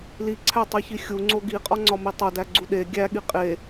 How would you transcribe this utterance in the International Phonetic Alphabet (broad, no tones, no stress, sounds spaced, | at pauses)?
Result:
l i ǀʰ æ tˤ i ç i xʲ u ŋ͡ǀ o ɡ i qʼ ɒ ŋ͡ǀ ɒ m i tˤ o d æ ɡ͡ǀ u ɗ e ɡʲ æ ɠ i qʼ e